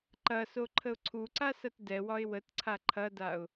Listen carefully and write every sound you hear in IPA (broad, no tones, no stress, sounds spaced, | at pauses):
ǃ ɐ s o ǃʰ ə ʊ̯ ǀʰ u ǀ a s ɐ t d ɛ w ɒ ɪ̯ w ə t ǀʰ a ǃʰ ɐ d a ʊ̯